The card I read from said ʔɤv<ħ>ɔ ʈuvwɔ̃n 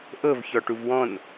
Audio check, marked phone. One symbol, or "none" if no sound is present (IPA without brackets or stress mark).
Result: ç